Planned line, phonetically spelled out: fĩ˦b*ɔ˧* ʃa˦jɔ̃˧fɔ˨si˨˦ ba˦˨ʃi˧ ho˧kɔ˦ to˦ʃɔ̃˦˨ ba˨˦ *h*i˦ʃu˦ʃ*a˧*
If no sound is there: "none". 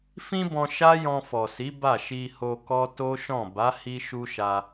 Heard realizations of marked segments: ɔ̃˧, h, a˧

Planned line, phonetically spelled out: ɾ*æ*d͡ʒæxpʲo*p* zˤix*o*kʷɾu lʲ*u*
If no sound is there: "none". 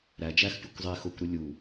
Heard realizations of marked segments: æ, kʷ, o, u

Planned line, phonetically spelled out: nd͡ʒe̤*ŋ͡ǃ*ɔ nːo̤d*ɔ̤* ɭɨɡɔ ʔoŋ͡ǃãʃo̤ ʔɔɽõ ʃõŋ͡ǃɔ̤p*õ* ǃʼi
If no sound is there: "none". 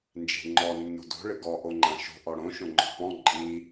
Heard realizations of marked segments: ŋ͡ǃ, o̤, ɔ̃

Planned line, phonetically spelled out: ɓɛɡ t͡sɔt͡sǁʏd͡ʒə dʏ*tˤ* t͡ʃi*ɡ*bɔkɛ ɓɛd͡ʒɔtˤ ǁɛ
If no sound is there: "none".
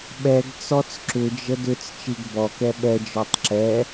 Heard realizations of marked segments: t͡s, ɡ

